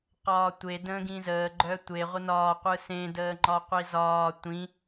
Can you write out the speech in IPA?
q ɒː tʷ e d ə̃ː ɡ ĩ z əː ɡ͡ǃ œ tʷ e ʁʷ ə n ɒː qʷ ɯ s ẽ d əː ŋ͡ǃ ɒ qʷ i z ɒː tʷ ĩ

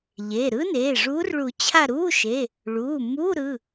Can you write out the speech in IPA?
ʎ eː˩˧˩ ɾ ɯ˦˥ n eː˩˧˩ ʐ uː˨˦ r ɭ u˨˩˦ t͡ɕʰ a˦˨ ɾ uː˧˥˧ ʃ e˩˧˩ | ɭ uː˩˧˩ m u˧˥˧ ɾ ɯ˩˧˩

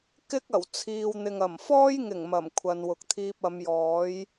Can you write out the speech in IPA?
k ɪ˥ k̚ ɐ˨˩ w t͡sʰ iː˨ w n̪ ɪ˨ ŋ ɐ˨˩ m f ɔː˥ j ŋ ɪ˨˩ ŋ m ɐ˨˩ m kʷʰ ɐ˨ n w ʊ˨ k̚ t̪ʰ iː˧ p̚ ɐ˨˧ m j ɔː˨˥ j

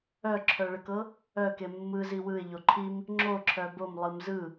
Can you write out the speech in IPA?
œ ǁʰ œ ɭ ə k ɤ | œ k e mː ɯ z i w ɯ ɪ̯ ʎ o ǃʰ i m | ŋ͡ǁ o ǁʰ œ b o m lˠ ɯ m z ɯ

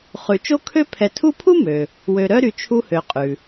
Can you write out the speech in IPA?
χ ʉ˨ t͡ʃ o˥ kʰ ø˥ pʰ ɛ˨ tʰ u˦ pʰ u˥ m ø˩ | w ø˨ ɾ œ˦ ɾ y˨ t͡ʃʰ u˦ h ø˨ qʼ ʉ˩

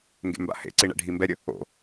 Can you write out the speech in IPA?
ŋ ɡ ḛ m b a̰ h ḛ ǀ i ɳ ɛ̰ ɖʱ i m b ɛ ɾʲ ə | o̰

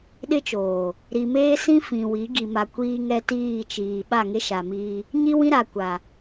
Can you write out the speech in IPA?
ɗ ɪ˦ t͡ʃ oː˨ | ɾ i˨ m eː˦ s ĩ˦ f ĩ˨ w i˨˦ ɡ i˨ m a˨ kʷ iː˦ ŋ ɛ˦ t iː˦˨ t͡ʃ iː˨ ɓ a˦˨ ŋ e˦ ʃ a˨ m iː˦ | ɲ i˦ w ĩ˦ ɾ a˨ kʷ a˨

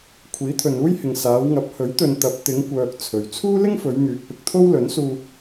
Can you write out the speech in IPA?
kʷʰ iː˨˥ t̪ʰ ɵ˨ n uː˥ j h ɪ˨ ŋ s aː˨˧ w ŋ ɐ˨˥ p̚ h ɵ˨˥ ɥ t̪ ɵ˨ n t̪ ɐ˨˥ p̚ t̪ ɪ˨˧ ŋ kʷ œː˨ k̚ t͡sʰ ɵ˨ ɥ t͡sʰ uː˥ l ɪ˥ ŋ f ɵ˨˧ ɥ ŋ yː˨ k̚ p ɪ˧ k̚ t̪ʰ o˥ w l ɵ˨˥ n s uː˧

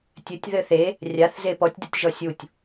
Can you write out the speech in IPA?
tʲ ɘ tʲ ð ɘ θ e | rʲ a θ z e p ɔ tʲ d ɛ tʲ ʒ ɔ sʲ u tʲ

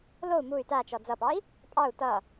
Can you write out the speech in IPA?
l o u̯ m u y̯ t a t͡ʃ ɔ d͡z ʌ p ɑ i̯ | pʼ ɑ u̯ t ʌ

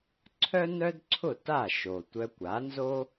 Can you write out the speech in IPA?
ǀʰ œ˥ n œ˥ d ǀʰ ʊ˥˩ t a˥˩ ʃ o˩ tʷ œ˧ kʷ a˩˥ n z o˥

